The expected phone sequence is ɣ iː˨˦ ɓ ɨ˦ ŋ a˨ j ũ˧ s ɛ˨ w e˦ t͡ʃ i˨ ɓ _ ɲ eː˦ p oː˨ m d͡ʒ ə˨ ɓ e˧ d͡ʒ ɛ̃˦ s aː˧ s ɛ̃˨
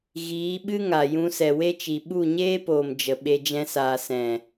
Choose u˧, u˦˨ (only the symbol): u˦˨